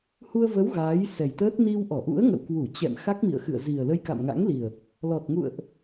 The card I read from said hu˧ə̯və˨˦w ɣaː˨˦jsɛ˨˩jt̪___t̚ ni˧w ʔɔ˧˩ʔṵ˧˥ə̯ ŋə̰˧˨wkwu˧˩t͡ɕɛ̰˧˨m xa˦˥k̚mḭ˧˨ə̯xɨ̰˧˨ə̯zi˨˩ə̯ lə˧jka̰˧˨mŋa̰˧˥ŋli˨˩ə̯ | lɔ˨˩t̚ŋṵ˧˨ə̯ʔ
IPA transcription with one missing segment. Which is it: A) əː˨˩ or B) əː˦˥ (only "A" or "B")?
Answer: B